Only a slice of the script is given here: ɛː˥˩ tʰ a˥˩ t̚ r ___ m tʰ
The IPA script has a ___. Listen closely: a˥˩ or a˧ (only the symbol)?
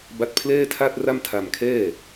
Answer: a˥˩